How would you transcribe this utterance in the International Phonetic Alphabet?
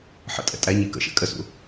ħ ə̰ tʼ ɛ̰ tʼ æ ɲ i k ə̰ ʃ ɛ̰ kʼ ə s ṵ

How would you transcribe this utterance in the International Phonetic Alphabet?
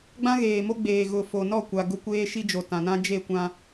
ɡ͡b ã˦ ɣ eː˨ m o˦ ɡ͡b eː˨ ɣ ʊ˨ f o˨ n ɔ˦˨ kʷ a˨ ɡ ʊ˦ kʷ eː˦ ʃ i˦ d͡ʒ o˨ t ã˨ n ã˦ d͡ʒ e˦˨ kʷ ã˦

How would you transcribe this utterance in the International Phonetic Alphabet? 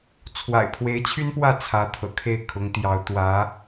t͡sʰ w a̰˨˩ ɪ̯ pʰ w e˧˥ ɪ̯ t͡ɕʰ y˥ n p w ä˥˩ t͡sʰ ä˧˥ t̪ʰ ɤ̰˨˩ kʰ e˥˩ ɪ̯ kʰ ʊ˧˥ ŋ t̪ j ɑ˧˥ ʊ̯ t̪ w ä˧˥

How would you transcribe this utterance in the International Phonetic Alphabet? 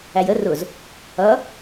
æ j ə r ʊ z | ʌ

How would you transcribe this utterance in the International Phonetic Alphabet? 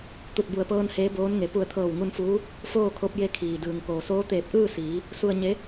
t̪ u˧˩ t̚ b u˧˩ ə̯ p ɤː˧ n h eː˧˥ b oː˧˥ n ŋ e˩˧ p u˧˩ ə̯ t̪ʰ ɤː˧˩ w ŋ u˧ n f uː˧˥ | f oː˥˨ kʰ o˧˥ p̚ j e˧ kʰ iː˩ d ɯː˩ ŋ k oː˩ s oː˧˥ t̪ eː˧˩ p̚ ʔ ɯː˥˨ s iː˩˧ | s u˧ ə̯ ɲ e˧˥

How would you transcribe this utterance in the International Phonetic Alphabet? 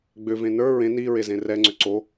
ɡ͡b ʏ v ẽ n ə˞ ɹ ẽ n i ɹ e z ẽ r ɛ ŋ͡ǀ ʏ ǀ o

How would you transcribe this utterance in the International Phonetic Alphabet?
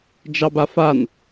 d͡ʒ ɑ b a f a n

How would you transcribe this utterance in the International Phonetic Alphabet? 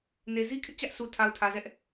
n e˨ z i˦ kʰ ɪ˦ ʔ t͡ɕ ä˦ ʔ sʰ u˨ tʰ a˨ ʊ̯ tʰ ä˨ z ɛ˦ ʔ

